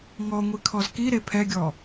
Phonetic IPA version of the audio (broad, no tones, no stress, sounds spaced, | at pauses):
ŋ ɔ ŋʷ i kʰ ɔ z k i ɾ e pʰ ɛ ɡʲ ɔ